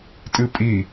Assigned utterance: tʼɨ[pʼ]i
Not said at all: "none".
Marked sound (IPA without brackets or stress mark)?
pʼ